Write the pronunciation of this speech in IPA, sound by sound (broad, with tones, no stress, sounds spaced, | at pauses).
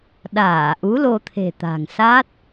ɗ aː˧˩ ʔ u˨˦ l o˧ t̪ʰ e̤˨˩ t̪ a̤˨˩ ŋ s a˦˥ t̚